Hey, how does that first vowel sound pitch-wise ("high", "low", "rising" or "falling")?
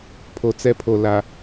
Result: low